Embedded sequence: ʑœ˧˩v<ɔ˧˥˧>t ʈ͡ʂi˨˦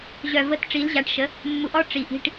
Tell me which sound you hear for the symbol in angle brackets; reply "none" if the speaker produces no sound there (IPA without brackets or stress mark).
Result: ə˧˥˧